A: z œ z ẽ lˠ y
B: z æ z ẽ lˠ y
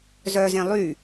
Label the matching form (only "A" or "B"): A